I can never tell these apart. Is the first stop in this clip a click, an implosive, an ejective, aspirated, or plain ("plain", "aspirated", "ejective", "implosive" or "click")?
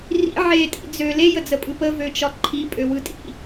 ejective